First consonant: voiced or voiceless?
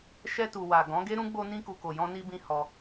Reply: voiceless